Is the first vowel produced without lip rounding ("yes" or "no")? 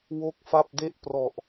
no